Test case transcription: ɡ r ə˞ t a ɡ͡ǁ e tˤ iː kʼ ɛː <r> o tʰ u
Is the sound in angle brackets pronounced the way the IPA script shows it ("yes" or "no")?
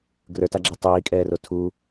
yes